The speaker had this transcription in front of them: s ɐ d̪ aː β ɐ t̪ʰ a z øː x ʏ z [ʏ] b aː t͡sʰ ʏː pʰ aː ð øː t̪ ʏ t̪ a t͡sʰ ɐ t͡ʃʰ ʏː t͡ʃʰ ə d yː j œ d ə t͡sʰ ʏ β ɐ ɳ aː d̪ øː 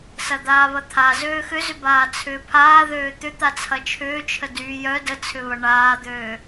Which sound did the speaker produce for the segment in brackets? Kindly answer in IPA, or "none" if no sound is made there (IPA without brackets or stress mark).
ʏ